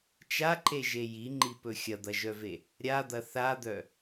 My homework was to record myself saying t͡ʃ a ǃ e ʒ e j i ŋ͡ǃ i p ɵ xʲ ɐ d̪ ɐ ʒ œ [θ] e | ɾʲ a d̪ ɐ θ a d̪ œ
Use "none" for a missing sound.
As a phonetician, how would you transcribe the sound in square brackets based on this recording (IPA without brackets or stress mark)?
v